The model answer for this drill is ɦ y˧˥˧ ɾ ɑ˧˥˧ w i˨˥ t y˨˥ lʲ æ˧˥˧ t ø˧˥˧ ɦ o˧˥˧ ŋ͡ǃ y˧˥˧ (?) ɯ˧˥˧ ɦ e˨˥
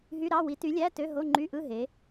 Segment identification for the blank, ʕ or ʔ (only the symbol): ʔ